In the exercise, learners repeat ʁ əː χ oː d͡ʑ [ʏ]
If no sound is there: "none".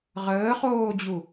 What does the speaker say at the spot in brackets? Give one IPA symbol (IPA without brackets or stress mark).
u